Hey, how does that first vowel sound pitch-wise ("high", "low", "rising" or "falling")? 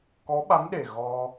rising